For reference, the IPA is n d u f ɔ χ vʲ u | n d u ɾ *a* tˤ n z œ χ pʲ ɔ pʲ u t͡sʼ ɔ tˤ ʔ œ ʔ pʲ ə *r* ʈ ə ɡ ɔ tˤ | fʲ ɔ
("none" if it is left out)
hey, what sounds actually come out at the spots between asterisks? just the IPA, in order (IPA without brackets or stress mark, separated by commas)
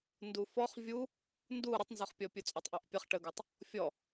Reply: ə, χ